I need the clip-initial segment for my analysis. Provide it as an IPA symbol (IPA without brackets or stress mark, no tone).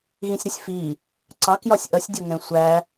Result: ɣ